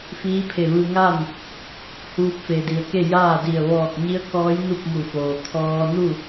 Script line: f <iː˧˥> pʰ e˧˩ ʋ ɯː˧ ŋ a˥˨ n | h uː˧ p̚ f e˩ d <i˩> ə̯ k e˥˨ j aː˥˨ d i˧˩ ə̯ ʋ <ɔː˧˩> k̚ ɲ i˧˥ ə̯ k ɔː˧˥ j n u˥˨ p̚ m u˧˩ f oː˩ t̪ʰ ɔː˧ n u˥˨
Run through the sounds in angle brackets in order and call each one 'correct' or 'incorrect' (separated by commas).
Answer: correct, correct, correct